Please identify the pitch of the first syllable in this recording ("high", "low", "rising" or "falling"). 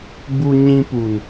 high